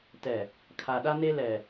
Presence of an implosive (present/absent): present